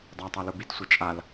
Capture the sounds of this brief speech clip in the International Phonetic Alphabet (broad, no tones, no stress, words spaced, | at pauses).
dˤatˤa lubitsʷɛ t͡ʃʼal